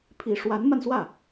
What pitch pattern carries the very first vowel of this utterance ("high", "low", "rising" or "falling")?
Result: low